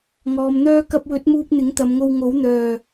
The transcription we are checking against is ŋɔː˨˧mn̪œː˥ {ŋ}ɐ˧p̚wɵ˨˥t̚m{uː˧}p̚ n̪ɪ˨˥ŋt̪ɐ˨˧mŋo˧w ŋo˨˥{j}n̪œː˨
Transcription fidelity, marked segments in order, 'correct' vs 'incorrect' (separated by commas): incorrect, correct, incorrect